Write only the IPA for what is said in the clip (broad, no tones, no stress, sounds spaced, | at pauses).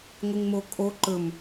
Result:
ŋʷ ɨ ŋ m o kʼ o ǃ ɵ m